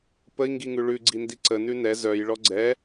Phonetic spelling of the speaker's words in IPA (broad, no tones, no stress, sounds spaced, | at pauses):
p ə i̯ ŋ ɡ i ŋ ʉ ɭ ʉ ɡ͡ǀ i n d i ǀ ə n ʉ n ɛ z œ j ɭ ɔ ɡ͡ǀ ɛ